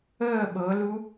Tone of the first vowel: falling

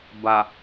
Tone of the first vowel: low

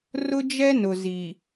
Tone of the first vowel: high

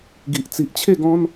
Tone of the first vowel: low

